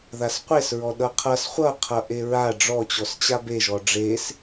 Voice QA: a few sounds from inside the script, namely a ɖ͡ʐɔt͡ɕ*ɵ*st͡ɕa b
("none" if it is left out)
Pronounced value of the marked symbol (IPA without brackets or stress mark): ɔ